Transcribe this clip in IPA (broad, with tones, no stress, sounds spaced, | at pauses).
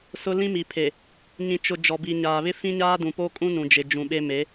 s ʊ˦ l ĩ˦ m i˨ pʰ e˨ | ɲ ĩ˨ t͡ʃ ʊ˨ d͡ʒ ɔ˨ b i˨ ɲ aː˨ β ɪ˦ f ĩ˦ ɲ aː˦ d ũ˨ p o˦ kʼ ũ˦ n ũ˨ d͡ʒ ɪ˨ d͡ʒ ũ˨ ɓ e˦ m e˨˦